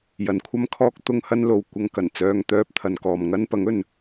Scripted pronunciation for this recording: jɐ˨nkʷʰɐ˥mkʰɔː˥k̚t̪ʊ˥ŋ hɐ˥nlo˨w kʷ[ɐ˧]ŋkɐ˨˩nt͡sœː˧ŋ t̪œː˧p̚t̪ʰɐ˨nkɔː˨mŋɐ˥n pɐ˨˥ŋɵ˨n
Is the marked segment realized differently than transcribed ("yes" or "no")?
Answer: no